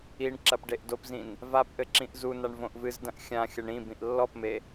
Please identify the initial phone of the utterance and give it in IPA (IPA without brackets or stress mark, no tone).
i